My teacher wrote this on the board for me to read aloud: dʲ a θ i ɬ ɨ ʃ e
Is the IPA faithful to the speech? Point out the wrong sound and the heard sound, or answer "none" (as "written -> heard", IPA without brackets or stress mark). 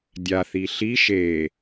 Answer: ɨ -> i